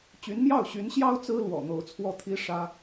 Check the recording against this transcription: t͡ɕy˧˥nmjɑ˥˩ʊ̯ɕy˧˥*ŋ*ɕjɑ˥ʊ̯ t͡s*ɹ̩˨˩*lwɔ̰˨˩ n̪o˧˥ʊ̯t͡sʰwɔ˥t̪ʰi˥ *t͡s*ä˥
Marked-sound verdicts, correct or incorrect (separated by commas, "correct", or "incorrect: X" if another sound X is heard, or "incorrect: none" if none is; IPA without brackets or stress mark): incorrect: n, incorrect: ɹ̩˥, incorrect: ʂ